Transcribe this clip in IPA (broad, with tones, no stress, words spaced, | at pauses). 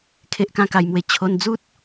kʰe˦ʔkã˥˧ka˧jmwe˧ t͡ɕʰo˧nd͡zu˦t̚